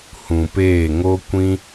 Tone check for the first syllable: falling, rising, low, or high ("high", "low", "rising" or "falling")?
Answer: low